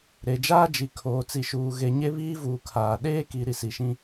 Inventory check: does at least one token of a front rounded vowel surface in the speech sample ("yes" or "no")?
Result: no